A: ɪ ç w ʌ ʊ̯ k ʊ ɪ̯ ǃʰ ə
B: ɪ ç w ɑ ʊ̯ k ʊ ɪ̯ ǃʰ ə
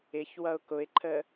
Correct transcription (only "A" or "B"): A